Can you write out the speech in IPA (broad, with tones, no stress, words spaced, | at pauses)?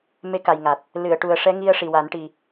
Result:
me˧˥ka˨˩jŋa˨˩t̚ | lɨ˨˩˨ə̯ʈu˨˩ə̯ʂɛ˧˥ŋi˧ə̯ ʂi˨˩wa˨˩˦nʈi˨˩